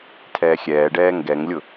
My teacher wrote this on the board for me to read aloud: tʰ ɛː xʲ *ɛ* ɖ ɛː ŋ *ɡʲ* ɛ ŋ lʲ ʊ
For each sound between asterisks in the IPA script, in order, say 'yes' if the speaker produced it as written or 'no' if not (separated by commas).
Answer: no, no